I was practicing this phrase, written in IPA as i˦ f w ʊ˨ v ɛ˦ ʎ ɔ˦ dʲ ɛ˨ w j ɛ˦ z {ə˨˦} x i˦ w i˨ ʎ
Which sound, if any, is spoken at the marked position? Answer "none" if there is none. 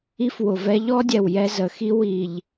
ə˨˦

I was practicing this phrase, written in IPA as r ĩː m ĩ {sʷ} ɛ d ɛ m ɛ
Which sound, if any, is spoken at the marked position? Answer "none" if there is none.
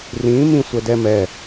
sʷ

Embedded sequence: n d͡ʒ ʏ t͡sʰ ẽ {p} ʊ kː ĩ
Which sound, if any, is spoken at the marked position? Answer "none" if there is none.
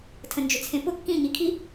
p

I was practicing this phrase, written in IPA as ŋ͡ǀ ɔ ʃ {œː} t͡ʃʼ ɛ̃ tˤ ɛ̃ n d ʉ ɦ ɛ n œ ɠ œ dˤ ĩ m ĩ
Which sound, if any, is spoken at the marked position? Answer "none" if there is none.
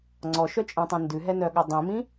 œ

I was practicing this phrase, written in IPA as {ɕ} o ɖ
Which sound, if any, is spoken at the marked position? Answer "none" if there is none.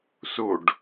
s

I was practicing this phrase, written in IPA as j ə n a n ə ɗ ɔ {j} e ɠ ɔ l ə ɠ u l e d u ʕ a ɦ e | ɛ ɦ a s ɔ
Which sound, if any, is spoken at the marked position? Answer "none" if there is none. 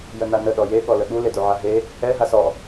j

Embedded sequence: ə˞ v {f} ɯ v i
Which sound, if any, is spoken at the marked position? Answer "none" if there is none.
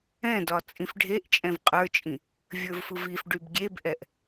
f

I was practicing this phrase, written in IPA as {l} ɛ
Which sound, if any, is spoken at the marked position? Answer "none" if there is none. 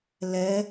l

